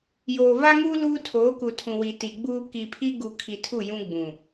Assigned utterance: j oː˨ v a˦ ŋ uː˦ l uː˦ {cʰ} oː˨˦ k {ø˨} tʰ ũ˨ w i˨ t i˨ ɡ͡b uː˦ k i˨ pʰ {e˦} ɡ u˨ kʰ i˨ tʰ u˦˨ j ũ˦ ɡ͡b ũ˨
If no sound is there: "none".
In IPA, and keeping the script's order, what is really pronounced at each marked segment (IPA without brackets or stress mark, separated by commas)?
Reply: tʰ, u˨, i˦